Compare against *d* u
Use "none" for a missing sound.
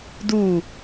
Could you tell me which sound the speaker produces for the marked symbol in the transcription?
d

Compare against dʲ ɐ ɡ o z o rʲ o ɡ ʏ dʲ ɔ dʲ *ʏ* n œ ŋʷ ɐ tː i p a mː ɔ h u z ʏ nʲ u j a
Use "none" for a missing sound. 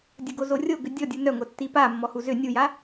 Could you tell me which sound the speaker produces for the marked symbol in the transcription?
u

